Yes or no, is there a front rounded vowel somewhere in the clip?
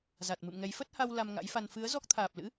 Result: no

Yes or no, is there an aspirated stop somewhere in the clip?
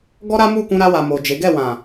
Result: no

